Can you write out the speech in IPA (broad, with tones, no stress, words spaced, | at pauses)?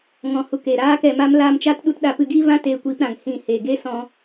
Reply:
ŋɔ̃˨hu˨k e˨ ɾaː˧kɛ˨ma˧m laː˧mt͡ʃa˦tɗu˧t ɗa˧pɨ˧ɡiː˦vã˦ teː˧kʷiː˧pɾã˨ŋ hĩ˦˨ heː˨ɡeː˦sɔ̃˧